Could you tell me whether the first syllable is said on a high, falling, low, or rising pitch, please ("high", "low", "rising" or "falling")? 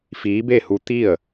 rising